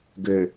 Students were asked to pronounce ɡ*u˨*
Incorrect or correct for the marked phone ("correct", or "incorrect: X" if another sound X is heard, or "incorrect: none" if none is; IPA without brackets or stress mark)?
incorrect: ø˨